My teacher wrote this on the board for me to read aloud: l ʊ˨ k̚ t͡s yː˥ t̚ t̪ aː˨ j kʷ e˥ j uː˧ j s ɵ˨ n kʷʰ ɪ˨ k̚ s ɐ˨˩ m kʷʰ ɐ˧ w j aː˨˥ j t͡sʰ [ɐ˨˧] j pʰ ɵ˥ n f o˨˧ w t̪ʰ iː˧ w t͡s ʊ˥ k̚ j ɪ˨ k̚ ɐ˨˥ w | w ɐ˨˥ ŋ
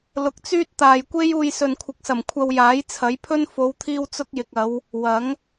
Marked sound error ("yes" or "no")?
yes